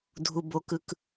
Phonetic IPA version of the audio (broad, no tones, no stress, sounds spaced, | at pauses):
dʱ u b o k ɯ k